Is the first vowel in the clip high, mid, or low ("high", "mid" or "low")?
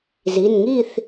high